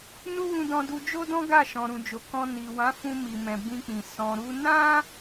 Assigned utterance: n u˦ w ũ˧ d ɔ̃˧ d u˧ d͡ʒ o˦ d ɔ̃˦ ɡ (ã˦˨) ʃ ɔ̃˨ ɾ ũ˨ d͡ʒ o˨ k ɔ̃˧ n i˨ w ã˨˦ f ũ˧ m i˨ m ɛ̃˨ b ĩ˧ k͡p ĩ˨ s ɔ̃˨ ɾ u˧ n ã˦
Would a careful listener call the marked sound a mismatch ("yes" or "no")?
yes